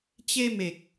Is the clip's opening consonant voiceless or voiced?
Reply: voiceless